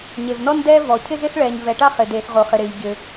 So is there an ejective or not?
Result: no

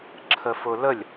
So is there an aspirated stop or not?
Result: yes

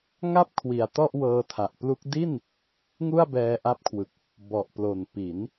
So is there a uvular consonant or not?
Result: no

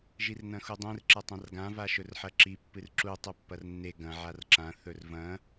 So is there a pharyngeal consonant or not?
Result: yes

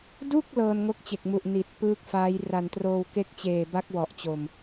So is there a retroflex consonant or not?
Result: no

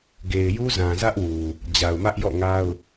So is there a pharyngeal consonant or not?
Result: no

